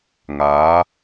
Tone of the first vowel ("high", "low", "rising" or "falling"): rising